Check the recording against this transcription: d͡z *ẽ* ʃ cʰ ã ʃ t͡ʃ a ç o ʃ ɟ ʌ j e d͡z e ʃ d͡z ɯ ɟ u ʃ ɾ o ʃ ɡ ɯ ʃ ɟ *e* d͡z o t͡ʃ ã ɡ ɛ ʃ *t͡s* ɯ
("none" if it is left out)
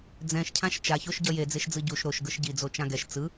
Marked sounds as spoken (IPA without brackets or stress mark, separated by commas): ɛ̃, i, t͡s